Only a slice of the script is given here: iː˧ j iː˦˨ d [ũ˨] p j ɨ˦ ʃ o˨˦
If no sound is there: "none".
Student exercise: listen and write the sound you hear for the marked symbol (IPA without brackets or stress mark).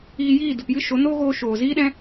u˨